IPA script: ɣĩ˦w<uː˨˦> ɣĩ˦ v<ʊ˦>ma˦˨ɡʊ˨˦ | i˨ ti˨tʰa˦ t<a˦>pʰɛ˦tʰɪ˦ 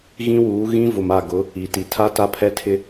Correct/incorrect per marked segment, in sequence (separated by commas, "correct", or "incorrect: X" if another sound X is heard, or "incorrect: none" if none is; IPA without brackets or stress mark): correct, incorrect: ʊ˨, correct